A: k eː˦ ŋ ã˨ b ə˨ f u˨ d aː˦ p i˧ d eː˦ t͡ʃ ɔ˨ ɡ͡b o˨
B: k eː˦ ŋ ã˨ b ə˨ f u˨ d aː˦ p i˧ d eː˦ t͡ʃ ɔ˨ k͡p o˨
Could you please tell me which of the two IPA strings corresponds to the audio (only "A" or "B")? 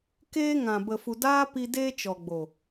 A